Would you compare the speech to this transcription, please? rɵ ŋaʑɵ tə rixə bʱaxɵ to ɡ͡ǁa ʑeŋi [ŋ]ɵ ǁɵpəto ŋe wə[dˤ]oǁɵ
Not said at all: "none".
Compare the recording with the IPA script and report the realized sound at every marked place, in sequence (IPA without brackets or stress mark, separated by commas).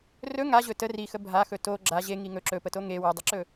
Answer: ŋ, dˤ